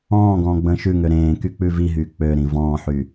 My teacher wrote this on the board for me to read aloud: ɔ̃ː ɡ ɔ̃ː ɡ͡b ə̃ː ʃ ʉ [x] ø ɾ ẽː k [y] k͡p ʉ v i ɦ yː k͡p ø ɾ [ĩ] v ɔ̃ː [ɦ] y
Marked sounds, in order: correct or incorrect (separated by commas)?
incorrect, correct, correct, incorrect